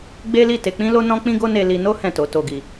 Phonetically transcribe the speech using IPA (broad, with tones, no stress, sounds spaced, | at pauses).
ɡ͡b e˦ l i˦˨ t e˧ k͡p ĩ˦ l o˦ n ɔ̃˦ k͡p ĩ˦ ɡ o˦ n e˧ l i˧ n o˦ h ɛ̃˦˨ t o˨˦ t o˧ ɡ i˧